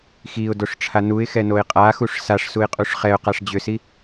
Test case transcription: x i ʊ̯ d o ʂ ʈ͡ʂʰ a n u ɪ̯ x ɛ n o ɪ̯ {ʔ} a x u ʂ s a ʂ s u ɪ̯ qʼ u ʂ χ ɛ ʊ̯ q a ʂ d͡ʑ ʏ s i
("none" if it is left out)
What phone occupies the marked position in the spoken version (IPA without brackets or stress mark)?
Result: qʼ